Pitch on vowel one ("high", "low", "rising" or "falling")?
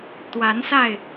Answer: rising